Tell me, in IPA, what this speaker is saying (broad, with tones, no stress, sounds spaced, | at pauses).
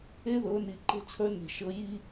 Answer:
e˦ ð ɤ˨˦ n i˨ ǃ e̤˦ t͡sʰ ə˞˦ n e̤˨ ʃ ɤ˨˦ j i˦